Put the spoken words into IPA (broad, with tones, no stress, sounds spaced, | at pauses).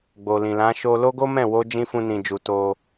ɡ͡b o˨ l ĩ˨ l ã˨˦ ʃ o˧ l o˦ ɡ o˦ m ɛ̃˦˨ w o˧ d͡ʒ ĩ˧ f ũ˧ n ĩ˨ d͡ʒ u˨ t o˧